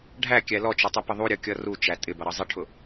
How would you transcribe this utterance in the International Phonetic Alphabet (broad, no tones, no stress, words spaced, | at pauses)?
ɖʱækʲæ lɔt͡ʃʊtˤupə ðˤuɾʲʌkʲʌ rut͡ʃæ tʼɪbʌɾʌ zˤɪʈʰʊ